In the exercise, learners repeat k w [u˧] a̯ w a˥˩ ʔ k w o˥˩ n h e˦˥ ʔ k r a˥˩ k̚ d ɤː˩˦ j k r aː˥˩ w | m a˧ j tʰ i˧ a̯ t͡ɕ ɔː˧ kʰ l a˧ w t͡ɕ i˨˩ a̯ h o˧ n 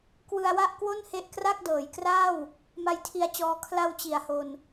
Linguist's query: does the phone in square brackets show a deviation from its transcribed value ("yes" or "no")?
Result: yes